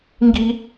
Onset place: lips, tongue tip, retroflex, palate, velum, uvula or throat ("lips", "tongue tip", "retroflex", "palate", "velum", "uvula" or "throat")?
velum